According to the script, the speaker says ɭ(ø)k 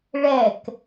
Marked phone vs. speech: incorrect: ɛ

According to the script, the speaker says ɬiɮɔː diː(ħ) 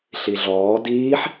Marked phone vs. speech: correct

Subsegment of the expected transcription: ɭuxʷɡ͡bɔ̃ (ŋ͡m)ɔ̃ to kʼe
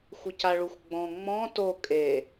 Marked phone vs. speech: correct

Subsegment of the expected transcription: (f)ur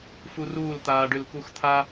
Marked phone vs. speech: correct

